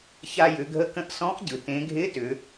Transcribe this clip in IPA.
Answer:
ç a˧ j ʏ˩˧ ɡʱ ə˧ k ə̃˧˥ ʔ s ɔ̃˧˥ ʔ ɟ ɯ˩ t ẽ˩˧ ɡʱ ɪ˧˥ t ʏ˩˧

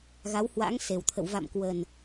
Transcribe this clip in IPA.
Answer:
ɣ a˨˦ w h w a̰˧˥ ŋ s e˨˩ w t̪ʰ ə̰˧˨ w v a̰˧˨ m k w ə˨˩ n

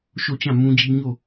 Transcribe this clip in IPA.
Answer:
ʃ o˦˨ t͡ɕ ã˦˨ m ũ˦ d͡ʑ i˦ ɲ o˦˨

